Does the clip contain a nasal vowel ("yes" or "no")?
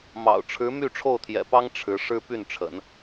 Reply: no